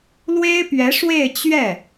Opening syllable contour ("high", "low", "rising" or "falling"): high